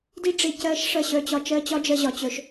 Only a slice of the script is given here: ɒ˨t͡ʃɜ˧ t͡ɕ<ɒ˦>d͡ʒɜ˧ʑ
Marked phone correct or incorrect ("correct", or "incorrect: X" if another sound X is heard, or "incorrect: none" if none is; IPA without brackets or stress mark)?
correct